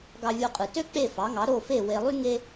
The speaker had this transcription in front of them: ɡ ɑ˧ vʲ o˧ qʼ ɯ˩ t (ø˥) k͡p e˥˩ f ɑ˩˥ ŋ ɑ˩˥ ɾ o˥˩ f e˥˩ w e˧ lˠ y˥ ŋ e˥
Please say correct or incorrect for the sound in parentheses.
correct